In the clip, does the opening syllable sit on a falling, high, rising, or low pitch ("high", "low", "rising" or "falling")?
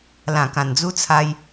low